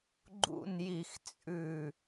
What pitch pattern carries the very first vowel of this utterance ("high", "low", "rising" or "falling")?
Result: low